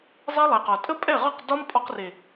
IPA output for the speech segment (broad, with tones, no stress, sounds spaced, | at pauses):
zˤ e˦ lˠ e˨ q ɒ˨ tʼ ə˦ pʼ ɛ˦˨ ʁ ɒ˦˨ q d ɒ˦ m pʼ ɔ˧ q r e˨